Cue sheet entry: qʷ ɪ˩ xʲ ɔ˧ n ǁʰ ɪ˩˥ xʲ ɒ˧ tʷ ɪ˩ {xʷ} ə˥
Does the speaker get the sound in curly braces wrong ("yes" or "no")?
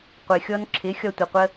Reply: yes